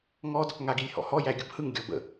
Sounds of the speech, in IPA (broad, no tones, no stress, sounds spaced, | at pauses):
ŋ ɔ d | ŋ a ɡ i lʲ h ɔ̰ h ɔ j æ ɡʲ ʊ b h ɯ ŋ ɡʲ ɔ b ə̰